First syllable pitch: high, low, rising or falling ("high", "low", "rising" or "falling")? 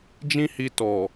high